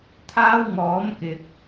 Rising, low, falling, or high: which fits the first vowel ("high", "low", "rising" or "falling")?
high